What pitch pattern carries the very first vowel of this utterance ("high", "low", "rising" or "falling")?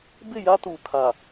falling